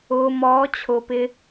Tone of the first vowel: low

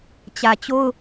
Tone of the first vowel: low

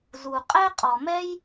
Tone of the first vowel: low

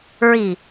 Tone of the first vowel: low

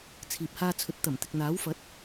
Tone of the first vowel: low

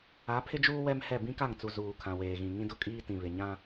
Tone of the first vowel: rising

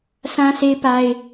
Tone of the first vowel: high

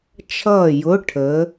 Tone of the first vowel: falling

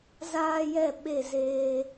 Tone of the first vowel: high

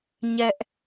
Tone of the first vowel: high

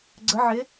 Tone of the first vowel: rising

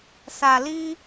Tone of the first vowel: low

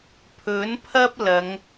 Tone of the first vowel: rising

